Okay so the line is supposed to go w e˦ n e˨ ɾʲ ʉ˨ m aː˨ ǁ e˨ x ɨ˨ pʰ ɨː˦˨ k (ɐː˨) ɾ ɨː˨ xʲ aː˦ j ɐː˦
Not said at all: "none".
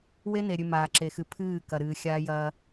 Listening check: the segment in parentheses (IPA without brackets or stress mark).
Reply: ɐ˨